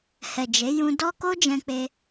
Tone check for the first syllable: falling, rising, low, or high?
low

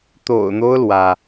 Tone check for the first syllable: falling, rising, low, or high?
low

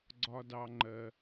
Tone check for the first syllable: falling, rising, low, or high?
high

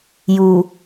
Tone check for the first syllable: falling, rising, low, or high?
low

